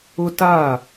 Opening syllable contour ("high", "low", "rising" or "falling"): high